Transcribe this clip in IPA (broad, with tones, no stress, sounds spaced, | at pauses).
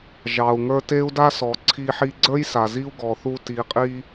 ʒ ɑ˩ u̯ ŋ ə˞˧ t e˥ u̯ d a˥ s ɔ˩ ǀʰ i˧ ħ i˧ ɡ͡ǀ ə˞˥ j s a˩ z i˥ u̯ ɡ ɔ˩ θ u˧ t i˩ qʼ i˧